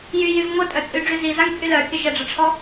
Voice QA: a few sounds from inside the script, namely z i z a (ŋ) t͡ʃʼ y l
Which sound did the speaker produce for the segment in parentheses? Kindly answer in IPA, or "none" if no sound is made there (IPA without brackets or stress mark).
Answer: ŋ